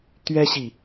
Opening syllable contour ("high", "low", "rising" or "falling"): high